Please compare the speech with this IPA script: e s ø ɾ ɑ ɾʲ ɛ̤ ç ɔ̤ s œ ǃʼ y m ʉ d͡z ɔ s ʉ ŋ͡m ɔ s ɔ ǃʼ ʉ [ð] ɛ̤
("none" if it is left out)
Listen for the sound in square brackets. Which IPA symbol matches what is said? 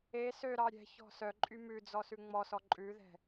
ð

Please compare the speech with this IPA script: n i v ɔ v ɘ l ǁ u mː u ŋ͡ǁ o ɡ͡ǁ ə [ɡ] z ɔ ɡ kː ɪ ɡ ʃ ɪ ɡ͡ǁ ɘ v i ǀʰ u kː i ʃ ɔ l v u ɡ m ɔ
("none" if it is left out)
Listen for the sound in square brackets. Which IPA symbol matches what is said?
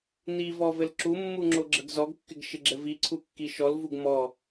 ɡ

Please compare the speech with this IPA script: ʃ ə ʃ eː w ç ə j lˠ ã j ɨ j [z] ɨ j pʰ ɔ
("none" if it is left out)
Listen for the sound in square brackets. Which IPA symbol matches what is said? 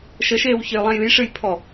ʂ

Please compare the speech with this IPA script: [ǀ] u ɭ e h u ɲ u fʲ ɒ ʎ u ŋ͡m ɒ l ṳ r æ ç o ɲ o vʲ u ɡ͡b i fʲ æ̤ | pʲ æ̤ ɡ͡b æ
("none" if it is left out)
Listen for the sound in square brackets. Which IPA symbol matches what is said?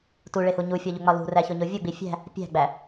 t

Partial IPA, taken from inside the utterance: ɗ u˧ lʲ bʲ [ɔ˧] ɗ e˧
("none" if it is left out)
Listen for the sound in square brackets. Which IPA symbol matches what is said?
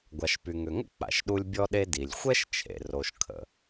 ɔ˧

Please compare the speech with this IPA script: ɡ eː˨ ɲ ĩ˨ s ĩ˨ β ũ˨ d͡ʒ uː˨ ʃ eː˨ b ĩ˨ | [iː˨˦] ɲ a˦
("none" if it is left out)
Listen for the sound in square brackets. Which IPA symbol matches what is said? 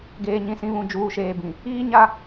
iː˦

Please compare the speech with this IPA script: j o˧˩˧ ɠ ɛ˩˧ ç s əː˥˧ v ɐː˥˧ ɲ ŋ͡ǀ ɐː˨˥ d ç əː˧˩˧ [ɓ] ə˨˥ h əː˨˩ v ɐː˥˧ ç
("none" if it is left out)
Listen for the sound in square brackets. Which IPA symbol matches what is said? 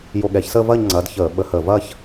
ɓ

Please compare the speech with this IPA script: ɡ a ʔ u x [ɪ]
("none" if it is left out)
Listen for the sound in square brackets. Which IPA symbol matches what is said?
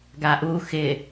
ɪ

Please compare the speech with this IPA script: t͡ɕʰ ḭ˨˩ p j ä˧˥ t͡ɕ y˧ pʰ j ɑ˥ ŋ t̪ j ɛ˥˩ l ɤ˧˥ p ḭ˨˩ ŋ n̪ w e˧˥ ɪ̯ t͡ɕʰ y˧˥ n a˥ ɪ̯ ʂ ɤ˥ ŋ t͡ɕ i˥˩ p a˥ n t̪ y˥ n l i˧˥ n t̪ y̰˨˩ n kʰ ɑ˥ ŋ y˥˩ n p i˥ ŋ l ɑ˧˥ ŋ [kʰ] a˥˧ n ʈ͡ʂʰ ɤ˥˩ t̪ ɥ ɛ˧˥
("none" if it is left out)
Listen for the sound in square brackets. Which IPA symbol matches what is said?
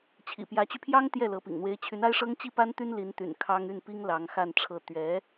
x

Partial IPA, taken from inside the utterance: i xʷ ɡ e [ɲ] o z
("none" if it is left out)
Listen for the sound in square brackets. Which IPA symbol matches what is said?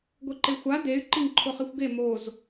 m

